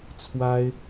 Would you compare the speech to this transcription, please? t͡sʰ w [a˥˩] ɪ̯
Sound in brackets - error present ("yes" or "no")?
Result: yes